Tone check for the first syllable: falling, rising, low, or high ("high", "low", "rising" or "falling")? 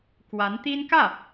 rising